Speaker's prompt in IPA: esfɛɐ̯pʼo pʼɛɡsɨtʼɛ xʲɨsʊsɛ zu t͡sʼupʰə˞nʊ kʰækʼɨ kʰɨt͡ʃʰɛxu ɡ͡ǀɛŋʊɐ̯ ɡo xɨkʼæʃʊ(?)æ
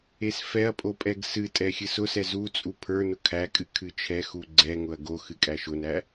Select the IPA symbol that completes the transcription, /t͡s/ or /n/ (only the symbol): n